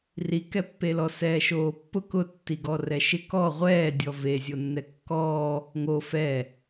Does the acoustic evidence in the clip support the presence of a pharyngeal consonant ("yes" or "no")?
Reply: no